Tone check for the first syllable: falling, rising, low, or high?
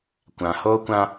low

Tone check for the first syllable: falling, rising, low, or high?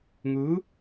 rising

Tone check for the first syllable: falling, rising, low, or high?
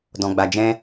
low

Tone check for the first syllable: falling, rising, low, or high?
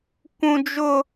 high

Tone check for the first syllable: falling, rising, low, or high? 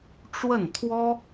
falling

